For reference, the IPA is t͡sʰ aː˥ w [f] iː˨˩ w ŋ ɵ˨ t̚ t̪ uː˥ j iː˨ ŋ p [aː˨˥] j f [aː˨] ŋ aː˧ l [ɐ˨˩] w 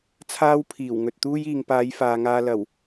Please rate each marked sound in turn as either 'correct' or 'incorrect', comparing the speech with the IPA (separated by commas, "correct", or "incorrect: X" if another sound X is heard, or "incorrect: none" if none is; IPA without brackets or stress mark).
incorrect: pʰ, incorrect: aː˨˧, correct, correct